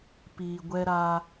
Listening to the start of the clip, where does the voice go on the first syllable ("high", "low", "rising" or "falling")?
low